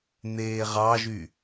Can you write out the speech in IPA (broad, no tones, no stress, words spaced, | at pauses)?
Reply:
n̪eːʁɑʒy